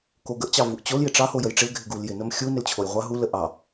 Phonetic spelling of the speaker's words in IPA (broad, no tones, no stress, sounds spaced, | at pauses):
k o ɡ ə ʔ t͡ɕ ɑ v u ʔ t͡ɕ o l j ɪ ʈ͡ʂ ɑ h o j ə j ʈ͡ʂ ɪ l ɡʱ ɪ ɡ u l j ɪ n ə m xʲ u n ɪ l t͡ɕʰ o j ʁʷ a ɦ u l ə ʔ ɑ